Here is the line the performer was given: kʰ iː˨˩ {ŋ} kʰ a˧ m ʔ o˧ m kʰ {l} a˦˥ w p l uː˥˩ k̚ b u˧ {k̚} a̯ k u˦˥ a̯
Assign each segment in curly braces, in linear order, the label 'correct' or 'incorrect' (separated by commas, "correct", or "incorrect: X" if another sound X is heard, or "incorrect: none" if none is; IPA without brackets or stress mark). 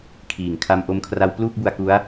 correct, incorrect: r, incorrect: none